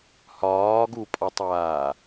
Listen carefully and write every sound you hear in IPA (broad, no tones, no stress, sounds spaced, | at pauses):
h ɒː ɡ u pʼ ɒ tˤ aː